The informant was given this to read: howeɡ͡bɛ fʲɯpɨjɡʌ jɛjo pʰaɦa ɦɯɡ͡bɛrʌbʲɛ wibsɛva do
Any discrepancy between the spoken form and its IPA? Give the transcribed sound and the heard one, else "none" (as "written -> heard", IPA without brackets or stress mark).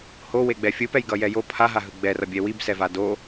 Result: ɨ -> ɛ